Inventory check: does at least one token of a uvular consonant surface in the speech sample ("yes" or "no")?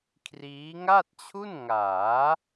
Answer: no